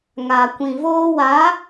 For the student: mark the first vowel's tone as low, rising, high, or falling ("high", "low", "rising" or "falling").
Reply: low